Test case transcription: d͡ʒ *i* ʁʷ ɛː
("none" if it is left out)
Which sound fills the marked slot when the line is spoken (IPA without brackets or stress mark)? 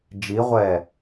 i